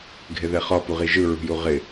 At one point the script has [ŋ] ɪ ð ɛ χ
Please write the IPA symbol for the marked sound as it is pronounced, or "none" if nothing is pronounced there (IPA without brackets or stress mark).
ɡʱ